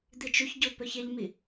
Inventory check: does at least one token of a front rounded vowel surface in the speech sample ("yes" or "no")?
no